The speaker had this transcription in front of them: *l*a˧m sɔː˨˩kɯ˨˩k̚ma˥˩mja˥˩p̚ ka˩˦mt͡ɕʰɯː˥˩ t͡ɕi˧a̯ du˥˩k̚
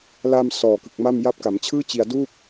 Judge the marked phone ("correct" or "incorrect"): correct